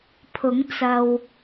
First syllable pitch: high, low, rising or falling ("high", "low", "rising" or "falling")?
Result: rising